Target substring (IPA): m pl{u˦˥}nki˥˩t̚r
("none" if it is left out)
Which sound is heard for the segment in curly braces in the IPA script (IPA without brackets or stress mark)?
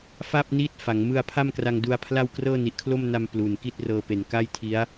u˨˩